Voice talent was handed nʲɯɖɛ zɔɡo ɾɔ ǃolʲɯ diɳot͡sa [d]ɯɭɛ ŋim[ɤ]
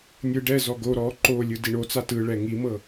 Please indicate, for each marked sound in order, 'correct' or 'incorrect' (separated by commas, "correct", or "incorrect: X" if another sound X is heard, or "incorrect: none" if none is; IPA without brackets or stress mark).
incorrect: t, correct